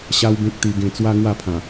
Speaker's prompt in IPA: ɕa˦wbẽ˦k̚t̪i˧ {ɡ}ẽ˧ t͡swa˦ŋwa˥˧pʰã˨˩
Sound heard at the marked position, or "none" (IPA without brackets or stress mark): ɡ